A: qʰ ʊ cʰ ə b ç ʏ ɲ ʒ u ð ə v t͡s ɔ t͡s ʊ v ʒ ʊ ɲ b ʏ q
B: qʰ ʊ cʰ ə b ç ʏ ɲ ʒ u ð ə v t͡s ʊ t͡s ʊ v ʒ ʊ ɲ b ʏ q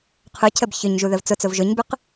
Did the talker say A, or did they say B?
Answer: B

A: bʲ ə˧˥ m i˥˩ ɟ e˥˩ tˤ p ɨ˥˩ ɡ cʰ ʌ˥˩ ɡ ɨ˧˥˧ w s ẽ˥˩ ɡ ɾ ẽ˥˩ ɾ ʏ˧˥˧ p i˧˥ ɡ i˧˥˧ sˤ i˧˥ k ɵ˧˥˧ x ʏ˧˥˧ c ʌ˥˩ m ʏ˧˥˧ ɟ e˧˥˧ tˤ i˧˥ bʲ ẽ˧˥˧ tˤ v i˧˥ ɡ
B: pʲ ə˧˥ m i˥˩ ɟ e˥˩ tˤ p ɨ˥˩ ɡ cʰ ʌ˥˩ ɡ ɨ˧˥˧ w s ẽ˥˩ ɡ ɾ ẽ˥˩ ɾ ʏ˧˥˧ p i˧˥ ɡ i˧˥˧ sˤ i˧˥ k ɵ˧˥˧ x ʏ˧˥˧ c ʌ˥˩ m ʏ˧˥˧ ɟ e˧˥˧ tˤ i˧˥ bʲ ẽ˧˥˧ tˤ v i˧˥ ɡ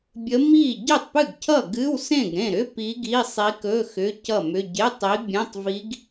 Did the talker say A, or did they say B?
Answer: A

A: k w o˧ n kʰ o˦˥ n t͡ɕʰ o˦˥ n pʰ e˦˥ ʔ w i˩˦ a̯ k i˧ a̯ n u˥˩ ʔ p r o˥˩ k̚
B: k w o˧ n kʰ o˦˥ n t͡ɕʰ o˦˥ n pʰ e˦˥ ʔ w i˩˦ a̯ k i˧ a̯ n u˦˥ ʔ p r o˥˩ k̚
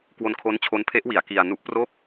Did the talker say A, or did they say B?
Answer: B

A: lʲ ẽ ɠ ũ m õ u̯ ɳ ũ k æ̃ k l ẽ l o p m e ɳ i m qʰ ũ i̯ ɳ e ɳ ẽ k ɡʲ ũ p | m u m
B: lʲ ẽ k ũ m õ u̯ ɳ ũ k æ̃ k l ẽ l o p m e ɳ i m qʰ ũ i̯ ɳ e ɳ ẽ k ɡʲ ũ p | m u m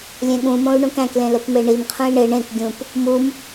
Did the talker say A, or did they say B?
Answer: A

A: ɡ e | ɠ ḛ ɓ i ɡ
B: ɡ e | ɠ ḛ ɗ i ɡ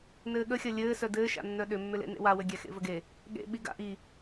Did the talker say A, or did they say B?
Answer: A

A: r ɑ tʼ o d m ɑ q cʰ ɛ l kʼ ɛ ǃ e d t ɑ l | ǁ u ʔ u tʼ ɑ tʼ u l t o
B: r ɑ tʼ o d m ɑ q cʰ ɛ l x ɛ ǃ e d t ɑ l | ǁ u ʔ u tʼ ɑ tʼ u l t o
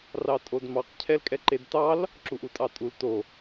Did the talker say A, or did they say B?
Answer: A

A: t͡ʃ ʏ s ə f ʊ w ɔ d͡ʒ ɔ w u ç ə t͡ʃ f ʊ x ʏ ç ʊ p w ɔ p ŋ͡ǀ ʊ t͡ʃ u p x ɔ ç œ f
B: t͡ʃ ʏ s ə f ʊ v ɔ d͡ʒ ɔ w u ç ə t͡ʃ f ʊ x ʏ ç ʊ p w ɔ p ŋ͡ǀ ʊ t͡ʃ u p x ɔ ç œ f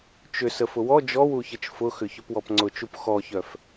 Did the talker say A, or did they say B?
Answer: A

